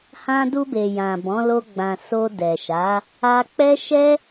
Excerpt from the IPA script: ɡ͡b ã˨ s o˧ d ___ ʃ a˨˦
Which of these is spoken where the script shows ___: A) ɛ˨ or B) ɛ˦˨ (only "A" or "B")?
A